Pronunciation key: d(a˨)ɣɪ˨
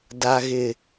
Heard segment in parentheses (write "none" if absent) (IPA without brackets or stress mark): a˨